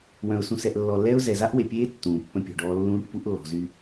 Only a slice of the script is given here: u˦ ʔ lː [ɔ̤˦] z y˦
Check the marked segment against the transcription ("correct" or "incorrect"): incorrect